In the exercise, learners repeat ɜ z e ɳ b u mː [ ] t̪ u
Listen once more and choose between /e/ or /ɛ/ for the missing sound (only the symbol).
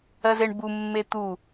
e